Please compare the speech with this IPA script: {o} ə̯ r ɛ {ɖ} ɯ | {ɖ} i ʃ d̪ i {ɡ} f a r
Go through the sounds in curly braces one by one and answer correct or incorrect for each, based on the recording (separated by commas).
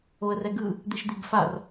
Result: correct, incorrect, incorrect, correct